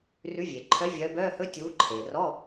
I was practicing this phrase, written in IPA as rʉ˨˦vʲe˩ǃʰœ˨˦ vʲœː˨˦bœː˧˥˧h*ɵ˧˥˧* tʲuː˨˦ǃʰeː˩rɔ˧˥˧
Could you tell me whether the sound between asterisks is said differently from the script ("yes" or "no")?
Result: no